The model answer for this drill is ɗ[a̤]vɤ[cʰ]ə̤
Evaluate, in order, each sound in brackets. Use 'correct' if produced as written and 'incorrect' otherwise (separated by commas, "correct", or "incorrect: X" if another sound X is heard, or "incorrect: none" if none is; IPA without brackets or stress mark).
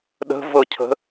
incorrect: ə̤, correct